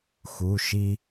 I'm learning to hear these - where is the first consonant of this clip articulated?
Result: velum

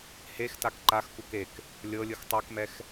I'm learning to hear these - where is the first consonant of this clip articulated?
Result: throat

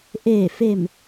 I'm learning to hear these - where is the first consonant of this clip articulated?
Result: throat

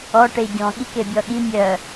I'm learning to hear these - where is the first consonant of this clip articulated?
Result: retroflex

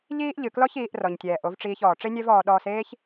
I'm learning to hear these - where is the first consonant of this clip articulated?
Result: palate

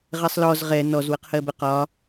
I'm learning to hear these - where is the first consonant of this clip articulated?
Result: uvula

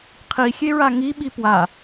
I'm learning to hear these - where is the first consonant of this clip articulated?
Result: uvula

